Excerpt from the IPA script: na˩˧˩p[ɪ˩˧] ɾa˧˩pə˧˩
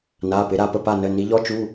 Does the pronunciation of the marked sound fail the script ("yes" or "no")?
no